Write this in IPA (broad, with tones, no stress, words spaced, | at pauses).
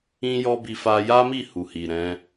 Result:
ĩ˦jɔ˦bi˧ fa˧ja˦mi˦˨ hu˨hi˨ɾɛ̃˨˦